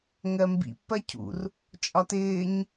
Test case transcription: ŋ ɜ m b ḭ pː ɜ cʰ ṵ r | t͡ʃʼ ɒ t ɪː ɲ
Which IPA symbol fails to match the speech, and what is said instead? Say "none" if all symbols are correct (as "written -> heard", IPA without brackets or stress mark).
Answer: none